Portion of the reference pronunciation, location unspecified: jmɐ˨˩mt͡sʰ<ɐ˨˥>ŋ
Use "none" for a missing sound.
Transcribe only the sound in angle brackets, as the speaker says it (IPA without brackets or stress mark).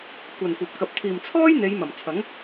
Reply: ɐ˨˥